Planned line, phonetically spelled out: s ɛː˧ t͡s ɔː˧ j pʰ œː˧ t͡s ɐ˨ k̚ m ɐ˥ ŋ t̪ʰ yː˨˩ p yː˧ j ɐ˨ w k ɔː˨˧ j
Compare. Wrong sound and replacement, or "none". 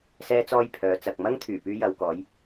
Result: œː˧ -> œː˨˧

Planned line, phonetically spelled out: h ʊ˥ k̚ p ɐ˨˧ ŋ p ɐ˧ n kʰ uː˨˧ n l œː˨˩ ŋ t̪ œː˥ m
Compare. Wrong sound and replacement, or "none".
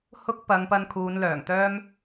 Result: none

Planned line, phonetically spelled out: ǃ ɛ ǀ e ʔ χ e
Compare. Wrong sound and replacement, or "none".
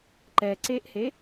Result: χ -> h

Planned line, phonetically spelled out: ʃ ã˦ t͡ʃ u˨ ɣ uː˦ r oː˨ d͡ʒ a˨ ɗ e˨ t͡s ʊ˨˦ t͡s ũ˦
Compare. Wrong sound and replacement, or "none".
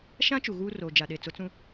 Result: none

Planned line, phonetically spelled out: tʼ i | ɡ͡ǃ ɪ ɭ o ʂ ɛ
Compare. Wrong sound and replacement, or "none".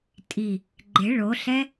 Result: ʂ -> ɬ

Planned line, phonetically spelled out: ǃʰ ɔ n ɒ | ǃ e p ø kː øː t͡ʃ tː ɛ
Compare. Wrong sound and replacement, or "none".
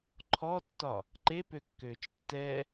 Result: n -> tː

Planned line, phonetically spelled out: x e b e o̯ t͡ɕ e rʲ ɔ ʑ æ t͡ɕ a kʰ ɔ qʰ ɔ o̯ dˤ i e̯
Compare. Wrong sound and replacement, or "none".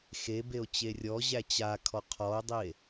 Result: none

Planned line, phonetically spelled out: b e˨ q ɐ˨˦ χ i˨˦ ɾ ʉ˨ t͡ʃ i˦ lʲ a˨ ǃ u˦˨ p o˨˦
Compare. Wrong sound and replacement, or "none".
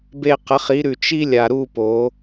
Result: ǃ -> ɾ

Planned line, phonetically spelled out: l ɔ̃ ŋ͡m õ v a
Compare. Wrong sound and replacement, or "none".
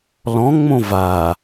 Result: none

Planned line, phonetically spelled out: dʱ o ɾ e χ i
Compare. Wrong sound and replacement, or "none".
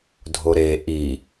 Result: χ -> ʔ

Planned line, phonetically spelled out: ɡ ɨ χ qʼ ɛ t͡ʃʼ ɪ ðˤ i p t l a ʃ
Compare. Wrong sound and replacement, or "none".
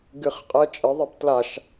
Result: none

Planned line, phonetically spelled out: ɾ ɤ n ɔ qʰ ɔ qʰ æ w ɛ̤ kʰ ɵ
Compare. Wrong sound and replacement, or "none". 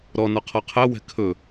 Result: ɤ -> ɔ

